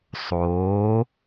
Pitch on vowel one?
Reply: rising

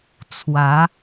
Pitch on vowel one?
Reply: rising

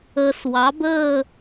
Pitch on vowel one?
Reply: low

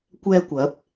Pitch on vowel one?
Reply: high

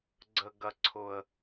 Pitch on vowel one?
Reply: low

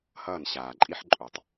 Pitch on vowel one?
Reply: falling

